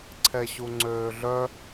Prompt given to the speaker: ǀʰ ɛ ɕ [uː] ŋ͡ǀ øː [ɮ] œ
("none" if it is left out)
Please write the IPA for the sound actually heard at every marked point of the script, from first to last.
u, ɮ

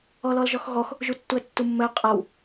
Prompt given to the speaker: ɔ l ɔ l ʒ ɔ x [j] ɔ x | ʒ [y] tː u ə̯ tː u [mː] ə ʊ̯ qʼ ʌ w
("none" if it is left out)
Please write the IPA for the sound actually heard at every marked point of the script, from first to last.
ɣ, u, mː

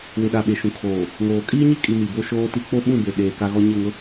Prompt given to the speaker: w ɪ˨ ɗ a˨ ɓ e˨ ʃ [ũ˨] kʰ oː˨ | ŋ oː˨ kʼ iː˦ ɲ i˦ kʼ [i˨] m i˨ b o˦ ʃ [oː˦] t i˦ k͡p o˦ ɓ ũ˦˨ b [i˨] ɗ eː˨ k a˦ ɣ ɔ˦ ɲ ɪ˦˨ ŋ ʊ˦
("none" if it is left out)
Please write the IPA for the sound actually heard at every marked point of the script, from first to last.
ũ˨, i˨, oː˦, e˨

